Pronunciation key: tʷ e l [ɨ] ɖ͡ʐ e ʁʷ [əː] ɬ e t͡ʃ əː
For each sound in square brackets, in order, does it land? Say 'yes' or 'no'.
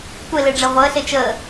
no, yes

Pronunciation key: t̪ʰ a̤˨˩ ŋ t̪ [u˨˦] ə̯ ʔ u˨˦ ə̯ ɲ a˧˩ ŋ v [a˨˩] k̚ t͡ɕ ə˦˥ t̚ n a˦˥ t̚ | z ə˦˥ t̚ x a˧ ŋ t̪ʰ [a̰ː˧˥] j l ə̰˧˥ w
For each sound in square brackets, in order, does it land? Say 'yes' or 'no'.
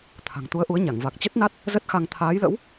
yes, yes, no

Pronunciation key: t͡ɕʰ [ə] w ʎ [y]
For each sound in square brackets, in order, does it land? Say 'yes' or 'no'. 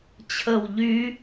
yes, yes

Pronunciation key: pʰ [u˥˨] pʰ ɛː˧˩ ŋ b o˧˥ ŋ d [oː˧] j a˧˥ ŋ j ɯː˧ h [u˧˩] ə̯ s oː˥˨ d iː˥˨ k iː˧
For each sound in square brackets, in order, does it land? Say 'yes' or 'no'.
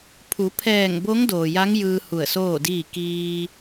no, no, yes

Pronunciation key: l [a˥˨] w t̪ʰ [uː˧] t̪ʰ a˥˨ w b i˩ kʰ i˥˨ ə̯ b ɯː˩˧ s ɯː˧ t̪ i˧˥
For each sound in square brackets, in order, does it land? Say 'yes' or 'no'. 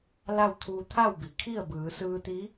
yes, yes

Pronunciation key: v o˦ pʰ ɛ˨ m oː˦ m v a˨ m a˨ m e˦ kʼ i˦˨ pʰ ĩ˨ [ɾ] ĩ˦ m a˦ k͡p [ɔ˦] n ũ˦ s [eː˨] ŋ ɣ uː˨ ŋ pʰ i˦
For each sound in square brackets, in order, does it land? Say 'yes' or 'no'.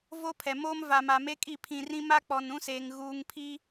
no, no, yes

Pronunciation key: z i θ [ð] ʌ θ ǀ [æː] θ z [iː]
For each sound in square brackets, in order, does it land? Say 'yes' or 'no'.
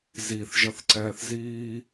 no, no, yes

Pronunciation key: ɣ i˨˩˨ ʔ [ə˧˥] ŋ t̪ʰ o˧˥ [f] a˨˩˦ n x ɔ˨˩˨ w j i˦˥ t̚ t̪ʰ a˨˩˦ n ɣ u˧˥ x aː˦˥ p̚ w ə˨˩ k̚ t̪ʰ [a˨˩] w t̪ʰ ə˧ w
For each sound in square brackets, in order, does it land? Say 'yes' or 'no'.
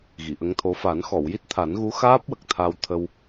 yes, yes, no

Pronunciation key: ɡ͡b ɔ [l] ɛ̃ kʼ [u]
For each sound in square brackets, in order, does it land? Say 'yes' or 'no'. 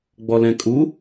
yes, yes

